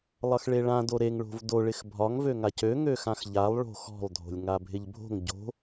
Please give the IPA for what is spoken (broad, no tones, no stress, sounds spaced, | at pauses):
lˠ ʌ x ɭ e ɭ ã d o ɾ e ŋ ɭ o̤ v d o ɭ ɪ x bʱ ɒ ŋ v ø ŋ a c ø ŋ ø x ã x ʎ a lˠ ɭ o̤ x ɔ̤ lˠ dʱ o̤ lʲ ŋ a bʱ ɪ ʎ bʱ o̤ ŋ ɟ o̤